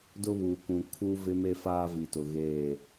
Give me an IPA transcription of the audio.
d ʊ˦ β u˨ k ũ˨ kʰ u˦ v ɪ˦ m e˦ f aː˦ v i˨ t ʊ˨ ɣ eː˦˨

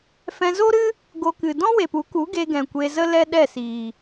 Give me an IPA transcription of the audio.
f ɛ̃˧ z o˦ ɾ ɨ˦ | ɡ o˧ k ɨ˨ d ɔ̃˦ w e˨ p u˨˦ k u˨˦ ɡ e˧ ɡ ɛ̃˨ kʷ e˧ z ə˦ l ɛ˦ ɗ ɛ˦˨ s iː˨

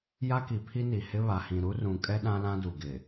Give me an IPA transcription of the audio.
j a˦ k i˨ pʰ i˦ n i˨ h ɪ˦ β a˨ h ĩ˨ ɾ u˦ r ũ˨ kʼ ɛ˦ ɗ ã˦ l ã˦ d u˨ ɡ ɪ˨

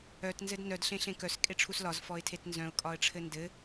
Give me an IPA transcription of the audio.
œ t n z ɘ d n œ d ɬ ẽ ɬ ẽ k œ s kʼ e ʈ͡ʂʰ u s l ɒ z f ɔ ɪ̯ tʰ e t n z œ̃ ʊ̯ kʼ ɒ ə̯ ʈ͡ʂʰ ɘ n d ɘ

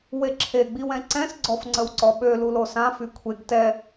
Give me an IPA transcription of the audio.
w e ǁʰ e ɡ͡b i w ɛ̃ ǀ ɛ̃ s ɡ͡ǀ ɔ f ŋ͡ǀ ə w ǀ ɔ ɓ ø l u l o s ã f y kʷʰ e ɡ t ɛ

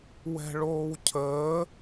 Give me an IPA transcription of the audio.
w ɛ̤ ɭ oː w cʰ əː

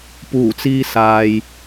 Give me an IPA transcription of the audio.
p uː˨˩ t͡s iː˧ s aː˨ j

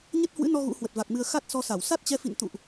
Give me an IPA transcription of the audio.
ɲ ə˦˥ t̚ h w ɨ̰˧˥ n ɔ˧ ɣ ṵ˧˥ h w ə˨˩ t̚ v a˨˩ k̚ m ɨ˧ ə̯ x a˦˥ t̚ s ɔ˧ s a˧˩ w s a˦˥ t̚ t͡ɕ ɛ˧ f ḭ˧˨ n t̪ ṵ˧˨ ʔ

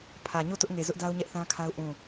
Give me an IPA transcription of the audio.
pʰ ä˨ ɲ o˦˨ t ʊ˦ ʔ ŋ e˨ z ʊ˦ ʔ d a˦ ʊ̯ ɲ ɛ˦ ʔ θ ã˦ kʰ a˦ ʊ̯ ʔ ũ˦˨

